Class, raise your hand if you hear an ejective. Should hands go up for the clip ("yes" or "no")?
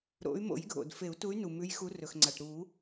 no